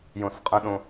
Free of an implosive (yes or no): no